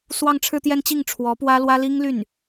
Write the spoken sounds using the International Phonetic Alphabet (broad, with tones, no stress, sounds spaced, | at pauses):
s w ɑ˥˧ ŋ ʈ͡ʂʰ ɻ̩˥˧ t̪ j ɛ˥˧ n t͡ɕ i˥˩ ŋ ʈ͡ʂʰ w ɔ˧˥ p w ä˥ l w ä˥ l i˥ ŋ l y˥˩ n